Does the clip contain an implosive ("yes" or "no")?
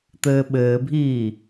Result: yes